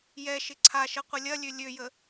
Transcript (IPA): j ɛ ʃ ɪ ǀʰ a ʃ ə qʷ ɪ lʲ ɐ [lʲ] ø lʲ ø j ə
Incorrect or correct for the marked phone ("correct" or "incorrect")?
correct